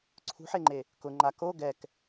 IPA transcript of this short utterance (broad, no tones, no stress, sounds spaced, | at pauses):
ǀʰ ṳ ħ e ŋ͡ǃ e | k ʊ ŋ͡ǃ a k o ɡ ɛ k